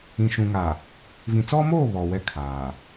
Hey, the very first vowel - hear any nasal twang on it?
yes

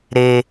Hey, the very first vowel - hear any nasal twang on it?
no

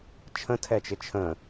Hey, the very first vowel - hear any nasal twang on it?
yes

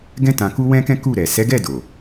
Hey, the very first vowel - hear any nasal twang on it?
yes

